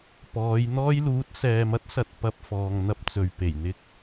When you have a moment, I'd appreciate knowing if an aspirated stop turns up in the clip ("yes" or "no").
no